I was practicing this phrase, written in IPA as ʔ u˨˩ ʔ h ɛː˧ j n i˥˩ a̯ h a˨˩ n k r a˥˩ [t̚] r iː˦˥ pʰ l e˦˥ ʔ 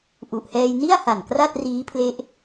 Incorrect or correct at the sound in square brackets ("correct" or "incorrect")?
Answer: correct